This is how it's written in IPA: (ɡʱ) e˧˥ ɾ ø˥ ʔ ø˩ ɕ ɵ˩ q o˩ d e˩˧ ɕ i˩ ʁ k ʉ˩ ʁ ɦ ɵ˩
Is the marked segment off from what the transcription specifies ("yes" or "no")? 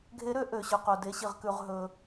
no